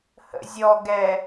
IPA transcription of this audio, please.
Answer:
h ə̰ zʲ ɔ ɡ ɛ

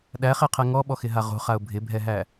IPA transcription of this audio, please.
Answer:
ɗ æ χ e qʰ ɛ ŋ ɔ ɓ ɔ x ɪ ɦ a ʁ o̤ χ a ʊ̯ bʱ ɪ bʱ ɛ ɦ æ

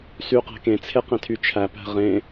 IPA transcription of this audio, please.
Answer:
s y q æ̤ k ẽ t͡sʰ e q ẽ tʰ y t͡ʃʰ æ p æ̤ ʁ ẽ

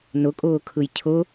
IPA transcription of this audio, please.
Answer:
n ʊ kʼ ʊː kʰ ɯ j cʰ ʊ

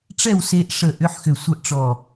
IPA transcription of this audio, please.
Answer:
ʈ͡ʂ ɛ˥˨ w s e˧ ʔ ʂ ə˧˩ ʔ ʏ˧˥˧ ħ x ʏ˧˩ sʷ ɜ˥˨ ʔ ʈ͡ʂ ɔ˧˩

